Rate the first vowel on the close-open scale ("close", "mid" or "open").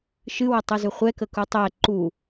close